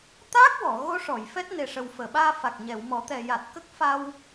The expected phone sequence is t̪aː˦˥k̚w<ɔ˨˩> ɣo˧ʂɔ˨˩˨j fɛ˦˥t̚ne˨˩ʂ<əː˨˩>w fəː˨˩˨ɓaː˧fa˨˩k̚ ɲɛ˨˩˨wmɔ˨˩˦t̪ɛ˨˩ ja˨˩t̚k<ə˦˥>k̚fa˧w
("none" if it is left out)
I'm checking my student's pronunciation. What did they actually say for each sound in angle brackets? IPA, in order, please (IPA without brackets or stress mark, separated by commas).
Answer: ɔ˨˩˨, ə˨˩, ə˦˥